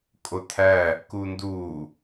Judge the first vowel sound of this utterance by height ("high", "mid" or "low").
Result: mid